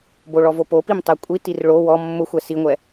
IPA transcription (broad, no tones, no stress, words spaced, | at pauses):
boɭɔvopo pimtˤɛkʷʼi tirɭo wɔ mːʊ xʷɛsiŋʷɛ